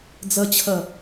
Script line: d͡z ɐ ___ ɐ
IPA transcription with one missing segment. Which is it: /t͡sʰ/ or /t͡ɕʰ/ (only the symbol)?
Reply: t͡ɕʰ